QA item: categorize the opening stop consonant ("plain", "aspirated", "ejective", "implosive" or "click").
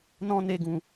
plain